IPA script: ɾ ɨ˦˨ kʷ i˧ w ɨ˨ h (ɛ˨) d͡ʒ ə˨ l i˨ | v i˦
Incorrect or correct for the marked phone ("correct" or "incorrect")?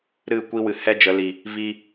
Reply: incorrect